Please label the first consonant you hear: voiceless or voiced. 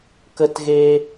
voiceless